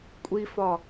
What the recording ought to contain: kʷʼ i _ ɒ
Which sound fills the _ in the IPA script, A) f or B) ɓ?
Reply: A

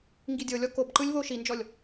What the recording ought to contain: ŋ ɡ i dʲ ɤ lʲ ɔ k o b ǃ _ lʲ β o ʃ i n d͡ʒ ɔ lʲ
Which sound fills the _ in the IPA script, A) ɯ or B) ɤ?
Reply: A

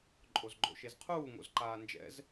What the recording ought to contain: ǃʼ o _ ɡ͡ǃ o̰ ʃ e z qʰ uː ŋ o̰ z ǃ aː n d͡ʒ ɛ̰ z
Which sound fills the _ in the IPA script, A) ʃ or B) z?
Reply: B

